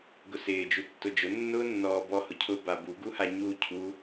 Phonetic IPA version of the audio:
ɡ ʊ s ɪː d͡ʒ u tː ʊ d͡ʒ ʊ nː ʊː nː ɔː b ɔ h ʊ cʰ ʊ b a b u ɡ u h a ɲ u cʰ u

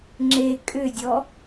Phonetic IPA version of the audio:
ŋ͡ǁ e kʼ ʏ dʲ ɔ

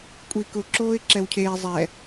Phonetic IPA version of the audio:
kʷʼ iː k ʊ ǁ oː ɪ̯ ǁ ɛ w cʰ eː zˤ ɛ

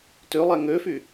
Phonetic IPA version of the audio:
t ø lˠ æ ŋ ø f y

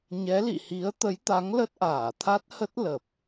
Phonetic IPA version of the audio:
ɲ ɛ˨˦ l ḭ˧˨ h i˨˦ ə̯ t̪ ə˨˦ j t̪ a˨˦ ŋ l ə˦˥ t̚ ʔ aː˧˩ t̪ʰ a˦˥ t̚ h ə˦˥ t̚ l ə˨˩ p̚

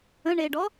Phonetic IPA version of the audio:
ə̃ ɳ e ɖ ɔ

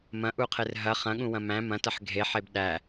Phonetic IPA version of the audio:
m ɐ̃ ʔ u qʰ e r ɦ ɐ χ ɐ̃ ɠ ũ w ɐ̃ m æ̃ m ɐ̃ t ɐ ħ ɡʱ e ħ e b ɗ æ

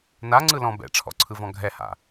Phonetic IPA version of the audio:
n a ŋ͡ǀ ɯ l ɔ̃ b ɛ̰ ʈ͡ʂʰ ɔ̰ ǀʰ ɯ v ɔ̃ ɡʱ ɛ h a̰

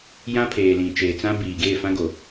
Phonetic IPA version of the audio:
j ã˦ pʰ eː˨ l ĩ˨ t͡ʃ eː˨ t͡s ã˦ b iː˨ ɡ eː˦˨ f ã˦ ɡ o˨

